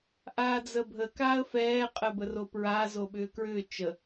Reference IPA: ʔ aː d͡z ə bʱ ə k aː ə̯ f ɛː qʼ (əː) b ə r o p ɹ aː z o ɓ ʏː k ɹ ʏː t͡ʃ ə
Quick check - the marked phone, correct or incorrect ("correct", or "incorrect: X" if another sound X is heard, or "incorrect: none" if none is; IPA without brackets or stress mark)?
correct